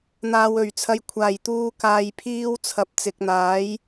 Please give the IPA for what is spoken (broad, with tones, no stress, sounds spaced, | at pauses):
n̪ aː˨ w ɵ˨˩ ɥ t͡sʰ ɐ˨ j kʷʰ aː˨˩ j t̪ uː˧ k aː˨ j pʰ iː˧ w t͡sʰ ɐ˨ p̚ t͡s ɪ˨ k̚ n̪ aː˨˥ j